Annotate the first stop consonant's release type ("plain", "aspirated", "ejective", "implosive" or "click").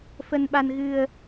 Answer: implosive